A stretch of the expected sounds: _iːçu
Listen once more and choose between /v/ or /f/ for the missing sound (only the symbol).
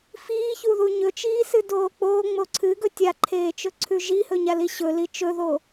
f